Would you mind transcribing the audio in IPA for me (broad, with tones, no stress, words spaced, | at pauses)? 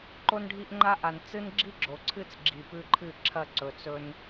ǃo˦nɖʱi˦ʔŋ͡ǃa˦ʔa˨n t͡sɨ˦nɡ͡ǁi˦ɡ͡ǁo˨ǀʰɨ˦t͡s ɡ͡ǁi˨pʉ˦ǃʰɨ˦˨ǁʰɐ˦˨ ǀɵ˨t͡sɵ˦n